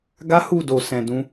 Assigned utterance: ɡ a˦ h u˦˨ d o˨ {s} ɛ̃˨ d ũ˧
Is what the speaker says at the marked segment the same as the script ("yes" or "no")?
yes